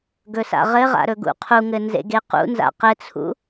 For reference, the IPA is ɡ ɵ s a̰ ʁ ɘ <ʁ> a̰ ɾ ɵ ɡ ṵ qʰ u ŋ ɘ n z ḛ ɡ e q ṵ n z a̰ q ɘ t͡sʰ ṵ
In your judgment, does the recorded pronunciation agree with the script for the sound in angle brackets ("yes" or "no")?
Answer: yes